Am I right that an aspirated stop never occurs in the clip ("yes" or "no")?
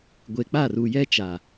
yes